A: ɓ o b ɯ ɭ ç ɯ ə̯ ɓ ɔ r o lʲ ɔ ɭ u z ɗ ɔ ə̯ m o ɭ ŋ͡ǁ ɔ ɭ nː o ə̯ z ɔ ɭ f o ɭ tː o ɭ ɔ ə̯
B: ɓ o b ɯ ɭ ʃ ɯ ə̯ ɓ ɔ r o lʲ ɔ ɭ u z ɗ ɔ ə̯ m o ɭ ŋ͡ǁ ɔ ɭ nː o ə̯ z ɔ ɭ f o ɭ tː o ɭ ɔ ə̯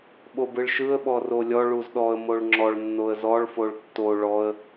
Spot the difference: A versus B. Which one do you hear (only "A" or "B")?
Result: B